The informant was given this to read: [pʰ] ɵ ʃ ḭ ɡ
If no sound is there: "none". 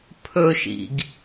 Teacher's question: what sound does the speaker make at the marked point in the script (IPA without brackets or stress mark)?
pʰ